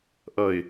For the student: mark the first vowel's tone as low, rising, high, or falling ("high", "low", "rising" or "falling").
falling